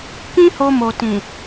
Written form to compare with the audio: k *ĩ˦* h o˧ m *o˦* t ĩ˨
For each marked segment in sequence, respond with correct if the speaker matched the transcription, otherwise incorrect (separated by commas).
correct, incorrect